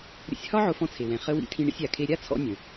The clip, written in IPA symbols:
ɾʲ ə̰˧ sʲ h ɒ˥ ʕ ʊ˧ f ɔ̃˧ t͡sʰ e˩ w ɛ̃˩ χ ə˧ w ḭ˧ tʰ ĩ˧ ɳ ḭ˧ sʲ a˩ kʰ e˧ ɾʲ a˥ t͡sʰ ɔ̰˧ nʲ ə̃˩

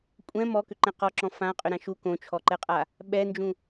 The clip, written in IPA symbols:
kʷʼ ɛ̃ m ɔ k ʏ ǃ ɛ̃ q ɔ ǁ ɔ̃ f ã qʼ ʏ ɾ ã ʃ u k õ t͡ʃʰ ɔ ǃ ɛ qʼ a | ɓ ɛ n d͡ʒ ũ

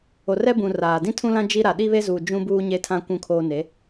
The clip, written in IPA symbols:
o˨ r ɛ˦ b ũ˨ r aː˨ d ĩ˦ tʰ ũ˦ l ã˦ d͡ʒ i˦ ɾ a˨ ɗ i˦ β e˦ z uː˨ d͡ʒ ũ˦ b uː˦ ɲ e˦ tʰ ã˦ kʷ ũ˦ kʰ oː˦ n e˨˦

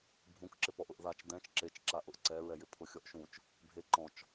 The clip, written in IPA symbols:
bʱ ũ k ǁ ɪ p ɔ ʔ ʊ ʔ ð a t͡ʃ d ɛ̃ t͡ʃ ǁ e t͡ʃ ǁ a ʔ ʊ ʔ ǀ ɛ ɹ ɛ j ɪ pʰ ʊ xʲ ɔ ʔ ʃ ũ t͡ʃ | bʱ e ǃ ɔ̃ t͡ʃ

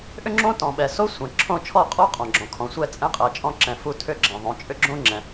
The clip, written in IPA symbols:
ʔ ʏ˦ ŋ͡ǁ õ˦ t ɔ̃˨ ɓ ɛ˨ s o˦ sʷ ɛ̃˨ ǁʰ õ˦˨ t͡ʃʰ ɔ˦˨ qʼ ɔ˦ qʼ ɔ̃˨ ɡ͡ǁ ɔ̃˨ kʰ ɔ̃˨ sʷ ɛ˦ t͡sʼ ɛ̃˦ qʼ ɜ˨ t͡ʃʼ ɔ̃˦ ǁ ɛ̃˨ f u˦˨ tʰ ʏ˦ ɡ͡ǁ ɛ̃˨ ðˤ õ˨˦ t͡ʃʼ ʏ˦ ɡ͡ǁ õ˦ ŋ͡ǁ ɛ̃˨

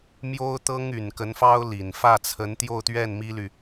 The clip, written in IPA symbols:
m j o˥ ʊ̯ t̪ ɤ˥ ŋ y˨˩ n k ə˧˥ n f ɑ˥ ʊ̯ l i˨˩ n f ä˥˩ t͡sʰ ə˧˥ n t̪ j o˥˧ ʊ̯ t̪ ɥ ɛ˥˩ n m i˥ l y˨

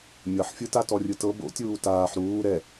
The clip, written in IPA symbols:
mʲ ɤ ħ fʲ ɯ t a t ɔ rʲ ɯ t ɤ b o̰ tʲ uː t aː ħ ɾ uː ɾ ɛ

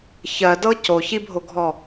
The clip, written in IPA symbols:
ç ɜ d ɤ c o ç i bʱ o ɡʱ ɔ

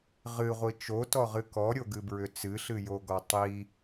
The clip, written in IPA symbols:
ʁ ɨ ʁʷ i t͡ʃ o t ɔ ʁ ɨ k ɔ ɾʲ o ɡ ɨ b ɹ ʏ t͡s ɨ ɬ ɨ j o ɡ ɔ tˤ i

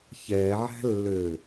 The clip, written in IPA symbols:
ç ɛ ʕ æ̤ lː ø

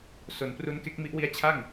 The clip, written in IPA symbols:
s o˩˦ n p r u˦˥ n k e˦˥ k̚ m i˦˥ ʔ w i˦˥ a̯ t͡ɕʰ a˥˩ ŋ

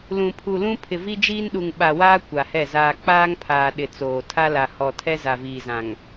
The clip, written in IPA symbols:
l ũ˨ pʰ u˨ l ũ˦ pʰ ɪ˨ v i˦ d͡ʒ iː˦ n ɗ u˨ ŋ ɓ a˨ w aː˦ kʷ a˨ h ɛ˦˨ z aː˨ k͡p aː˦ ŋ pʰ aː˨ ɗ ɪ˨ t͡s oː˨ tʰ a˦ l a˨ h ɔ˨ tʰ ɛ˦ z a˨ v iː˨ z ã˨ ŋ

